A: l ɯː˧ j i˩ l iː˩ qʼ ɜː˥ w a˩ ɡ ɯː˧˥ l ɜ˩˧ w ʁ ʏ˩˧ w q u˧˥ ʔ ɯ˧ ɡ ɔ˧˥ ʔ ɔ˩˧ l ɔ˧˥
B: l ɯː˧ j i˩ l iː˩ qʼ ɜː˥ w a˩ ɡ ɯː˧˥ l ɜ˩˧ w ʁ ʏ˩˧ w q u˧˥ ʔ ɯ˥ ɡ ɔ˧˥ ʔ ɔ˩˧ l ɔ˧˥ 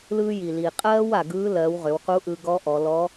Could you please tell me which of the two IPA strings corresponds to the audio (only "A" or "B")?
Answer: A